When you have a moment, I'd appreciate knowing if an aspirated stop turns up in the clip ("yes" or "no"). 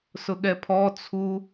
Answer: yes